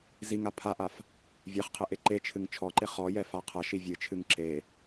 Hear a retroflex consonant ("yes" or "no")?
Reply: no